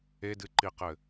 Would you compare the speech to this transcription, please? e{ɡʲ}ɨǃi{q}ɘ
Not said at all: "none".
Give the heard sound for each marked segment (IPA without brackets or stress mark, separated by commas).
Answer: d, q